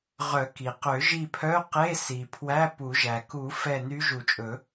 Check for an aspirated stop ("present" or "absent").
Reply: present